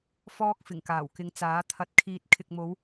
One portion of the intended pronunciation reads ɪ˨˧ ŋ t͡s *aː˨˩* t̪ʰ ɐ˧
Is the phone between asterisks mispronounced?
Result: yes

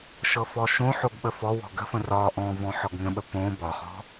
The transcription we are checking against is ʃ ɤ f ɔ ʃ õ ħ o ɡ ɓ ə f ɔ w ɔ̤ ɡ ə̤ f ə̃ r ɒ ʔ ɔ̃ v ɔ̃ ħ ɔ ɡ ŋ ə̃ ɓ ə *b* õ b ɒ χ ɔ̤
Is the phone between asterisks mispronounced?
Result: yes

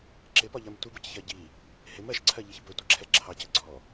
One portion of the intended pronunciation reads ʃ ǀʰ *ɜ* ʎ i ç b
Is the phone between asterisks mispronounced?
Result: no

